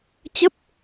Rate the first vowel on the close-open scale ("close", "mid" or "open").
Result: mid